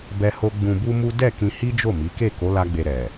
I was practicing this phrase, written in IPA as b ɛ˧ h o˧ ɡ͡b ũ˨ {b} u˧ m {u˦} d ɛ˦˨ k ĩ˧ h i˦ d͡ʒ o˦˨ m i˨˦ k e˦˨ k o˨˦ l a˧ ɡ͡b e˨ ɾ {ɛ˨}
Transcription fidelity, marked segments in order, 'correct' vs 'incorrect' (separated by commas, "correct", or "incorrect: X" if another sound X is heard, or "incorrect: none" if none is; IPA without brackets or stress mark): correct, correct, correct